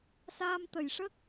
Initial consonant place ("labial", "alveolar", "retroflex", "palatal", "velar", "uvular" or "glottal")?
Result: alveolar